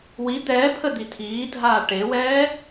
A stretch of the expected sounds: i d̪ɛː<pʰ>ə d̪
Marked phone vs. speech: correct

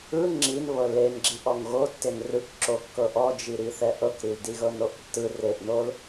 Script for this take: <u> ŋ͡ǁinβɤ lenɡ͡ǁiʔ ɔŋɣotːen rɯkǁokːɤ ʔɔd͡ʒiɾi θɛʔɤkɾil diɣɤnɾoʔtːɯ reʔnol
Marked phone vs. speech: incorrect: ɯ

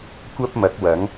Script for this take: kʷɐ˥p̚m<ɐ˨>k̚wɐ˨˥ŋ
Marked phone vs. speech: incorrect: ɐ˨˥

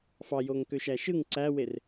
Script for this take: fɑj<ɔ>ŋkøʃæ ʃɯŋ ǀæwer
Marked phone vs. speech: incorrect: o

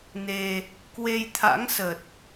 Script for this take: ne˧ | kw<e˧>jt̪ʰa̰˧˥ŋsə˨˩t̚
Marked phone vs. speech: correct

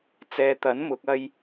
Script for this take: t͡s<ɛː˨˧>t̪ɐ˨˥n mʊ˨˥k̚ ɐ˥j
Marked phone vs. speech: correct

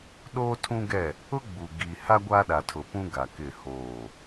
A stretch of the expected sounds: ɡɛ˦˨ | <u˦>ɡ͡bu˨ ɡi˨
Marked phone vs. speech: incorrect: ʊ˦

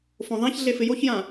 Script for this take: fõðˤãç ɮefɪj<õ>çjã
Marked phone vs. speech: incorrect: o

